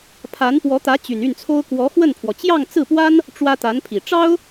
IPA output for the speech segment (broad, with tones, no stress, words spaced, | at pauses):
pʰa˧˥npwɔ˧˥t̪ä˧˥ t͡ɕy˨˩ny˥˩nt͡sʰo˥ʊ̯ kwɔ˧˥xwə˥˩npʰwɔ˩ t͡ɕjɑ˥˧ŋt͡sɹ̩˥˩pwa˥n | ʈ͡ʂwä˥t̪a˧˥npʰi˨˩ ʈ͡ʂɑ˥ʊ̯